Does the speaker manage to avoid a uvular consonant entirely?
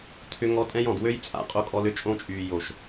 no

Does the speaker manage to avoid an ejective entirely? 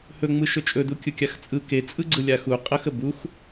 no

